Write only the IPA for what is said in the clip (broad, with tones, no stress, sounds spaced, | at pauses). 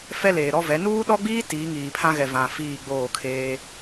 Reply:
f ɛ˦ l eː˨ ɾ ɔ˦ v ɛ˨˦ n uː˦ ɗ ɔ˦ ɡ͡b iː˦ t iː˨˦ ŋ iː˨ pʰ ã˦ ɣ ɛ˨ v ã˨ f iː˦˨ ɡ͡b oː˦˨ kʰ eː˦